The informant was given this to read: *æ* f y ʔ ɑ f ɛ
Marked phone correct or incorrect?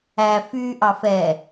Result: correct